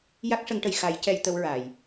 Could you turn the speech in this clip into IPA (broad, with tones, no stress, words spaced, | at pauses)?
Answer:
ja˦˥k̚ʂə˧˥ŋʈə˨˩j xa˨˩˨jcɛ˨˩˨j t̪ə˧˥wɹa˨˩˨j